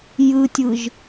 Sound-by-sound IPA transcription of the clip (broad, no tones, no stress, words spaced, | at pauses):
jɯtʲɯʒ